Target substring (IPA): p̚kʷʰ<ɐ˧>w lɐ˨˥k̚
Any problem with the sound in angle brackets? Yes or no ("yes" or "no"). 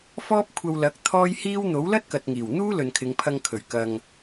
no